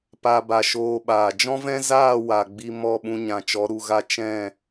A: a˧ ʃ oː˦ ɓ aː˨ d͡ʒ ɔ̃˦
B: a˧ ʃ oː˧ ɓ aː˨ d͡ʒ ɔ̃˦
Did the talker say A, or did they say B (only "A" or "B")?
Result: B